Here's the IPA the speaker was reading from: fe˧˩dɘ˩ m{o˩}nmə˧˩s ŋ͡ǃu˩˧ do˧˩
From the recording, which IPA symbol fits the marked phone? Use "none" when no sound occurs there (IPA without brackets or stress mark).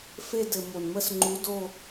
o˩